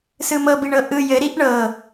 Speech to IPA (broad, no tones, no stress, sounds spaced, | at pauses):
s ɯ m ɤ b i ɳ ɤ ʔ ɯ j ɘ ɾ i ʔ ɳ ɤ